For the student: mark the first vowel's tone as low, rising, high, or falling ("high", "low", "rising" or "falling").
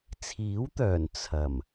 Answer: rising